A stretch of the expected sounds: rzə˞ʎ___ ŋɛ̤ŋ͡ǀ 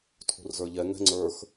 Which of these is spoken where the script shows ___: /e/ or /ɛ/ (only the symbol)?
ɛ